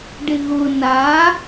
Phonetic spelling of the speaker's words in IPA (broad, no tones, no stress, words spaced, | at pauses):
ɖɪɣʊ na